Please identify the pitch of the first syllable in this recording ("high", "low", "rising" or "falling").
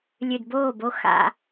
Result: low